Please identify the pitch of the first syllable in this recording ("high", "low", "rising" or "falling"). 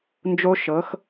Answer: high